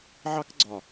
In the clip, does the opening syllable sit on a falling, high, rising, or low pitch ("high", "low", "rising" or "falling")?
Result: high